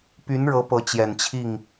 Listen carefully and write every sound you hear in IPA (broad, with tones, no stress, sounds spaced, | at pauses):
p y˧˥ n ɻ ɤ˧˥ p ɤ˧˥ t͡ɕ j ɛ˨˩ n t͡ɕʰ i˥˩ ŋ